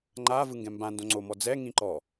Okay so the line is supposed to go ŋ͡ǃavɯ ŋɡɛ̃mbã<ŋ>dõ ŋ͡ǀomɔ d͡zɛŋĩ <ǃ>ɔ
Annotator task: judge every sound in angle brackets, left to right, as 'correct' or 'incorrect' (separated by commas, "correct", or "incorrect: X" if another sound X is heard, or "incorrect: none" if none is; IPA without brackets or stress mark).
incorrect: n, correct